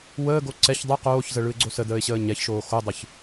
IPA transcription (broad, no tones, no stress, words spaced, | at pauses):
wəːɡo ǀɛç dˤɯ qoːçzə ɭɯɪ̯ɡ͡ǀosədəːɪ̯ ɕəːɲɛçʃoː xodˤɯç